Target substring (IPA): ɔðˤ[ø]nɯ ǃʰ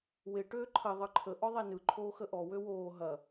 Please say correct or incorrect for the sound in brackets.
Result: incorrect: e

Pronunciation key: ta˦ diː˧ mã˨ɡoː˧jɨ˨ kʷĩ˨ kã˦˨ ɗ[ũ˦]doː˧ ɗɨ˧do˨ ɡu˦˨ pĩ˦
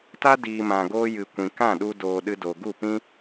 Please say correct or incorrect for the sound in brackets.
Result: incorrect: u˦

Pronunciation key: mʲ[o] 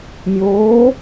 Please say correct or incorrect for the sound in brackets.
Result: incorrect: oː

